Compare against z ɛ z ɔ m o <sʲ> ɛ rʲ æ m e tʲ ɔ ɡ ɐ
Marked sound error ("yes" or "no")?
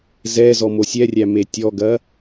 no